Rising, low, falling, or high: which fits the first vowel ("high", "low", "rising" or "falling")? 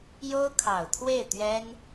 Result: high